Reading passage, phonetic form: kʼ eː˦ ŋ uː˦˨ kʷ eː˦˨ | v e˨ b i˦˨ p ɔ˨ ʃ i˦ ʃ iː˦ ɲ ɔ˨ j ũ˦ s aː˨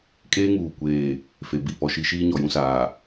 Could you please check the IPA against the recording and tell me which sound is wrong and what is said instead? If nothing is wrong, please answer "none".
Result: v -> f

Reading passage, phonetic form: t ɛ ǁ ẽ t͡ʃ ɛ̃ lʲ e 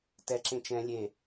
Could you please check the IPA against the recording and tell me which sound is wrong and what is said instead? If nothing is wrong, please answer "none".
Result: none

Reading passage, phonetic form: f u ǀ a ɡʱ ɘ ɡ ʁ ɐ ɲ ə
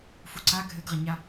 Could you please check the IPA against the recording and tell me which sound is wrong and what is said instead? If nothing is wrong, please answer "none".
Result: ə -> a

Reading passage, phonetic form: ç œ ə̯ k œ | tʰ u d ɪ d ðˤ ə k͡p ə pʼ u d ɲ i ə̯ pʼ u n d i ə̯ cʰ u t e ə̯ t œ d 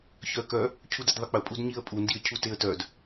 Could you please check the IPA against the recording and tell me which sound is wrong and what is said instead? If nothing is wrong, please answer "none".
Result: tʰ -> cʰ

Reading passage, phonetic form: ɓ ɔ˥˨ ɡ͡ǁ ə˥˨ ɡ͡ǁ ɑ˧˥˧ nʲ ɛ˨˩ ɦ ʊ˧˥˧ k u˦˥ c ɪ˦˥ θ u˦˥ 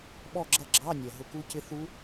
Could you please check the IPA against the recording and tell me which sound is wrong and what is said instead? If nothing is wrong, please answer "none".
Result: ə˥˨ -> ʌ˥˨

